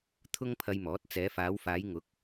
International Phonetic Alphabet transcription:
t̪ʰʊ˥ŋpʰɐ˧jmɔː˨˥t̚ t͡sɛː˨˧faː˨˧wfaː˨˧jŋʊ˨˥k̚

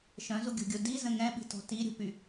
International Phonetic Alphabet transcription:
ʃœ̃zuɡʲo̤ɡʲo dizə̃ ŋɛ̃ɓi̤tɔ̤ tiɾʲo̤py

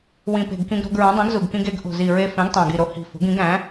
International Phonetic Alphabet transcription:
wĩ˨˩pe̤˨˩ɡkĩ˧ɡ ɾo̤˧ɡɹũ˩˥ dˤĩ˩˥ɡzu˨˩ɡkĩ˧ɡe˩˥ɡ ʔo̤˨˩zi˨˩ ɹe˧fẽ˩˥ɡ tˤæ̃˨˩ɡi˨˩ɾo˩˥ hi̤˨˩ fo̤˩˥ɡĩ˩˥ɡ æ̃˩˥

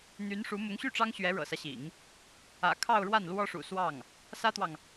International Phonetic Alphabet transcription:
n̪y˧˥nʂu˧˥ mʊ˧˥ŋɕy˥˩ʈ͡ʂɑ˥ŋ ɕɥɛ˧˥ɻɤ̰˨˩sä˦ɕḭ˨˩˦ŋ | ä̰˨˩ kʰɑ˥˧ʊ̯ɻwa˥˩nlwɔ˥ʂṵ˨˩ swɑ˥˩ŋ | sä˥t̪wɑ˨ŋ

